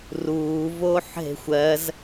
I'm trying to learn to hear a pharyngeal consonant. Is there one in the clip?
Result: yes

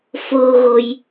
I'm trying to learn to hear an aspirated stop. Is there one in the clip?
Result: no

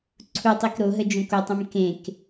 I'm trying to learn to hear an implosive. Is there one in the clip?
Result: no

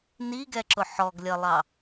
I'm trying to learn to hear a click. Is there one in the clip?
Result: yes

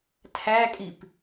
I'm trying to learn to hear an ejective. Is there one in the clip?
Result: yes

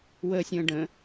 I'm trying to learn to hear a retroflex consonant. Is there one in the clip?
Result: yes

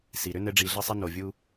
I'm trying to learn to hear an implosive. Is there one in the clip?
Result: no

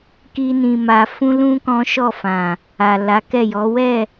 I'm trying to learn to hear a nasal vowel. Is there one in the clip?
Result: yes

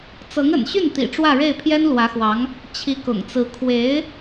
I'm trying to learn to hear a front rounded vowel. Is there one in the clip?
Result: yes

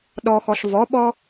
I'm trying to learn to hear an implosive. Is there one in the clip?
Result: yes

